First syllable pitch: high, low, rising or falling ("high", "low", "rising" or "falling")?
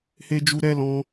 high